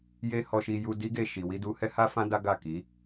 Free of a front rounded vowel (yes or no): yes